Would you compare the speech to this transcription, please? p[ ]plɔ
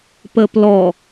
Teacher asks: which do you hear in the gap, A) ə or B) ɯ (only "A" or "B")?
A